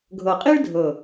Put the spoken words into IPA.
ɡʱɤ˨˩qʼi˥ɭdʱɤ˨˩

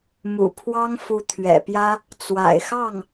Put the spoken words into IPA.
mṵ˨˩pʰwɑ˥ŋfu˧˥ t̪ʰɥɛ̰˨˩pjä˥ | t͡swa̰˨˩ɪ̯xɑ˥˩ŋ

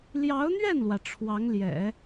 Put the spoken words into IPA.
ljɑ˧˥ʊ̯n̪ɥɛ˥˩nlwä˩ ʈ͡ʂʰwɑ˧˥ŋljɛ̰˨˩˦

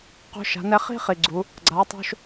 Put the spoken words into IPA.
qo̤˦ʃa̤˨˦nɛ˦ χi̤˦ χi˨˩ɡ͡ǀu˨˦ | ɡ͡ǀa˨˦tˤo̤˦ʃ

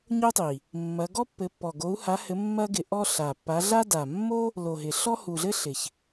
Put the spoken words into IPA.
ɲo˥tˤi˨˩ | mːɐ˨˦ ɡɔ˥pːɘ˨˦pːɔ˨˩ ɡo˨˦u̯ha˨˦hɘ˨˦ mːɐ˥ɡɪ˨˦ʔɔ˥ ɬa˨˩ pːa˨˦ɮa˥da˨˩ mːo˥ | lo˨˩ɦɪ˨˩ ɬɔ˥hu˨˩ɮɘ˥ ɬɪ˨˩ç

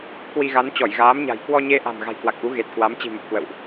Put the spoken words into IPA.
kwi˧ ɣa˨˦n t͡ɕɔ˧˩jɣaː˨˦mɲa̤˨˩j kwɔ˧ɲe˧ʔa̤˨˩m ɣa̤˨˩jkwa˨˩k̚ʔu˨˦ ɣe˨˩t̚kwa˨˦m t͡ɕi̤˨˩mə˨˩p̚kwə̰˧˨wʔ

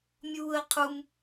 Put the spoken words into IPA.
mʲuːə̯qʰum

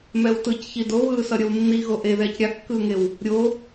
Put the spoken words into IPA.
mɛwtɯcçi doβɯːsʌ ɾʲʌwnːiɣo ʔe ðɛːcɾʲakːɯːŋew | ɾʲo

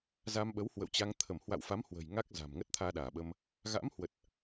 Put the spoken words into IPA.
za˧mɓə˨˦whwə̰˧˨wt͡ɕa˧ŋ t̪ʰə˧˩mhwa̰˧˨wfa˨˦m hwə̤˨˩jŋa˦˥k̚ za̤˨˩m ŋə˦˥t̚t̪ʰaː˧ɗaː˧˩ɓə˧m | ɣa̰˧˥mhwə˨˩t̚

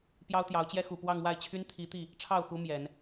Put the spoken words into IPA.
pjɑ˥ʊ̯t̪jɑ˧˥ʊ̯t͡ɕjɛ˥ xu˨˩pwɑ˥˧ŋ wa˥˩ɪ̯t͡ɕʰy˥n t̪ʰi˧˥t̪i˥˩ | ʈ͡ʂʰɑ˥˩ʊ̯xu˧˥ mjɛ˨˩˦n

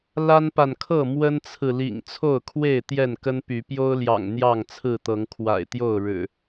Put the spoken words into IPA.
la˦npa˨nkʰɤ˥˨ mwə˦nt͡sʰɹ̩˨ lḭ˨˩ŋ t͡sʰo˥˨ʊ̯kʰwe˥˨ɪ̯ t̪jɛ˥˨nkə˦npy˨˦ pjo˦ʊ̯ljɑ̰˨˩ŋ n̪jɑ˥˨ŋt͡sʰɹ̩˥˨t̪ɤ˨˦ŋ kʰwa̰˨˩ɪ̯t̪jo˥˨ʊ̯ ɻɻ̩˨˩

